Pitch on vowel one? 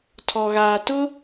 low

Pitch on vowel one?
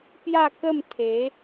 falling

